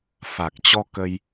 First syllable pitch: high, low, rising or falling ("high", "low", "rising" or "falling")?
low